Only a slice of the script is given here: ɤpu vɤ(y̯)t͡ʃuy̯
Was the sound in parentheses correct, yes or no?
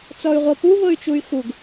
yes